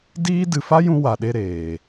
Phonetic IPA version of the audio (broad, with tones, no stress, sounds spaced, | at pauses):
d iː˦ d ɨ˨ f a˦ j ũ˧ w a˨ ɗ e˧ ɾ eː˨